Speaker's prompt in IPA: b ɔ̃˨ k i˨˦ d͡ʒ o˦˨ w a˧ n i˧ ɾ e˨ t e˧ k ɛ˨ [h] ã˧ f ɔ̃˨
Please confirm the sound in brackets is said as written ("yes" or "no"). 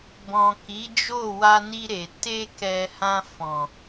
yes